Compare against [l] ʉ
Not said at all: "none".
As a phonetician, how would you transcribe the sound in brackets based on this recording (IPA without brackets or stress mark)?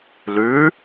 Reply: l